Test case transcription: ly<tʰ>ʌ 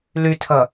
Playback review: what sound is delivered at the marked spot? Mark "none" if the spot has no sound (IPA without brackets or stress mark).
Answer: tʰ